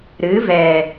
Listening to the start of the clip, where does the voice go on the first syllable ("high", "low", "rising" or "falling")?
rising